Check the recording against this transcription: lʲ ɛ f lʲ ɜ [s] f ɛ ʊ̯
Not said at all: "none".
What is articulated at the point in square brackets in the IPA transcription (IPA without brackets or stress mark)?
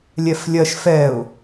ʃ